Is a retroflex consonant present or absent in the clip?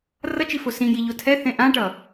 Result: present